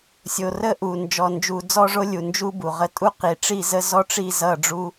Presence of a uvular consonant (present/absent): present